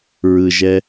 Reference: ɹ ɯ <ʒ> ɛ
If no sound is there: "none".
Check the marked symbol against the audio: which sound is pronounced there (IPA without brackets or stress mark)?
ʒ